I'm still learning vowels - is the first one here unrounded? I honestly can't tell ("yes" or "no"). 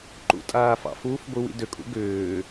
no